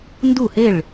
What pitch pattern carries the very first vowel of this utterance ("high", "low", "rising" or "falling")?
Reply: falling